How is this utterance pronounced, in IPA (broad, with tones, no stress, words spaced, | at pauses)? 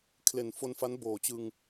kʰle˨˩nfo˧nfa˦˥n boː˨˩t͡ɕɯ˧ŋ